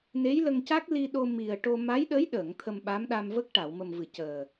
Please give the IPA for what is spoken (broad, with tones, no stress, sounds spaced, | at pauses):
n e˧˥ j l ə˧ ŋ c a˦˥ k̚ l i˧ ɗ o˧ m i˨˩ ə̯ ʈ o˧ m a˧˥ j ɗ ə˧˥ j ɗ əː˨˩˨ ŋ t̪ʰ ə˧ m ɓ a˧˥ m ɗ a˧ m v ə˦˥ k̚ ʈ a˨˩˨ w m ə˨˩ m v ɨ˨˩˨ c əː˨˩